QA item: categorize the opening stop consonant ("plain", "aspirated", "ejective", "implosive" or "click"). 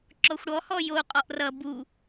click